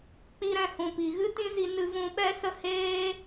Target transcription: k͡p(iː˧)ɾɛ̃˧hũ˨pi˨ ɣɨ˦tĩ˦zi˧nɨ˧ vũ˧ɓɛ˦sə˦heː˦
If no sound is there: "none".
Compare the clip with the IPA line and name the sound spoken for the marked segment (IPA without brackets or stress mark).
i˧